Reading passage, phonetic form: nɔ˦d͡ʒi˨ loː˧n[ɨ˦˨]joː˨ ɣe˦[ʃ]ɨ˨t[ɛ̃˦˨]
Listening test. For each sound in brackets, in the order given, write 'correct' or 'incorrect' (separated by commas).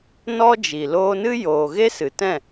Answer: incorrect, incorrect, correct